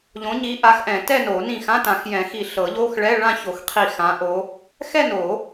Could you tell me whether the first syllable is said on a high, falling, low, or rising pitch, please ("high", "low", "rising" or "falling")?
rising